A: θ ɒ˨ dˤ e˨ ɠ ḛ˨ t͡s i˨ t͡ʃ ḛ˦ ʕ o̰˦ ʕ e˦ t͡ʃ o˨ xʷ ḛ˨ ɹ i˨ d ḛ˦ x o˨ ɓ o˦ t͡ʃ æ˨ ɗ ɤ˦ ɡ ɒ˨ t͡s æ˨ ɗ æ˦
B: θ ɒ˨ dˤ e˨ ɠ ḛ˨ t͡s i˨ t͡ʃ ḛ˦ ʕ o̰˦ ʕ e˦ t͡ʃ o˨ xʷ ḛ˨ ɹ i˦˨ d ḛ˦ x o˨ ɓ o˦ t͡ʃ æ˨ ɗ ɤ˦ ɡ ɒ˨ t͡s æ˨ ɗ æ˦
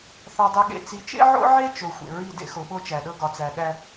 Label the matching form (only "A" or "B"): B